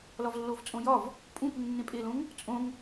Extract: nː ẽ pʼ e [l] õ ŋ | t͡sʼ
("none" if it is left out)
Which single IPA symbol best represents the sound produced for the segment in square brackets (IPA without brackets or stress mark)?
l